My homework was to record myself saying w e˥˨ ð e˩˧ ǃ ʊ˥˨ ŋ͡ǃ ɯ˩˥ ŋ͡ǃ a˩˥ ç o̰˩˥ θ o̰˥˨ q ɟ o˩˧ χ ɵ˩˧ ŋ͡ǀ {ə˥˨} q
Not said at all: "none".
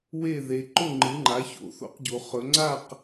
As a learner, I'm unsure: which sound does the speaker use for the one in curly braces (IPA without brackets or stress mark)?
a˥˨